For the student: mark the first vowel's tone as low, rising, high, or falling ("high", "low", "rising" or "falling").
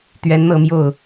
rising